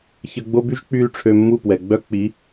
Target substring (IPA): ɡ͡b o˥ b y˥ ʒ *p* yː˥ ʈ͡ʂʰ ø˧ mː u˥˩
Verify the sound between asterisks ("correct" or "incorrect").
incorrect